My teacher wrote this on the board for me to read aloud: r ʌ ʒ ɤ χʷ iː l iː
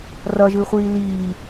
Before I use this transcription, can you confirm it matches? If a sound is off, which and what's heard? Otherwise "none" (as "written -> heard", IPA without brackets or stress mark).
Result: ɤ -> ɯ